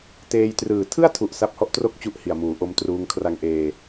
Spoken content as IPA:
teː˧jtrɯː˨˩ tʰɯ˥˩a̯tʰu˨˩ʔ sa˦˥p̚hɔ˦˥ʔtro˥˩k̚t͡ɕu˦˥ʔ hi˨˩a̯muː˩˦ʔo˦˥mtruː˦˥ŋ kʰra˧ŋʔeː˧

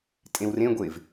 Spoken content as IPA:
tʼẽwrẽɡʷev

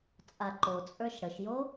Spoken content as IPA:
t͡sʼaǃot͡sʼə˞ʃ ɽəʃjo

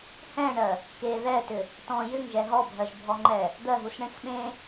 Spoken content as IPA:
hɛ̃ɳɜ | keðɛtʏ | tɔ̃ jʏŋʒɛ ɦɔbʱɜʒbʱɔŋ͡ǃɛ | d̪ɜɦusɳẽx ɓẽ

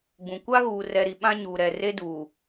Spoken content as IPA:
ɡ͡bũ˨ kʷa˦ɣuː˨rɛ˨ɾi˨ ɓã˦ɲuː˨ɾɛ˨ re˦duː˨

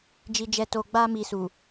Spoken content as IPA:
d͡ʒi˧d͡ʒɛ˧to˧ ɡ͡ba˦mi˧ su˨

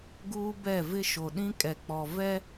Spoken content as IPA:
ɡuː˦bɛ˦˨vɪ˦ ʃo˨ɗĩ˦kʼɛ˨k͡pɔ˨ vɛ˦

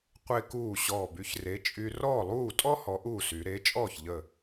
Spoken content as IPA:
qʷe˥kuː˥˩ ɕɔː˧˩by˨˥çre˨˥ t͡ʃʼy˧ rɔː˥˩lˠuː˥˩tʼɔ˥ hɔ˨˥ʔuː˥˩sy˩˧ ɾe˨˥t͡ʃʼɔː˥˩çʎə˧˩

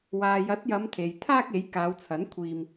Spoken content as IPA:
waː˨jɐ˨˥t̚jɐ˨˧m t̪ʰe˨jt̪ʰaː˥k̚e˨˥j kaː˨˧wt͡sʰɐ˨˥n kʷʰiː˧m

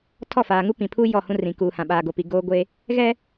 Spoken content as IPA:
tʰɔ˦˨faː˨ŋu˦ pĩ˨pʰu˦ jɔ˦˨hũ˦rĩ˨ kuː˨hã˨ ɓaː˨ɡo˨pi˨ ɡoː˦ɡʷe˦ | ɣɛ˦

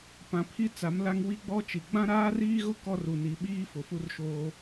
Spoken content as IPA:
pã˨pʰi˦ t͡sa˨˦mla˦ŋ wi˦ɡ͡bɔ˦t͡ʃi˨ ɡ͡bã˦ɾaː˦riː˦ɣʊ˦ kɔ˦ru˨ni˨ ɓiː˦ fʊ˨fu˦rʃoː˦

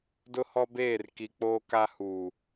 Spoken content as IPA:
dʊ˦hɔ˦beː˦˨r ki˨k͡poː˦ka˦ huː˨

